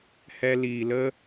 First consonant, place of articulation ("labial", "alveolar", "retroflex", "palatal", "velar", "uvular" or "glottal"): glottal